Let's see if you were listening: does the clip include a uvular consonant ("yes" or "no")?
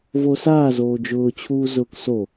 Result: no